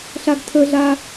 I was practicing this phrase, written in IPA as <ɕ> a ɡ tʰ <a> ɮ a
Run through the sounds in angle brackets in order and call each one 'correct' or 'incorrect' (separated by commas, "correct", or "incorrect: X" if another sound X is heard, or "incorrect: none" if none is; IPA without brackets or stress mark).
incorrect: ɬ, incorrect: ə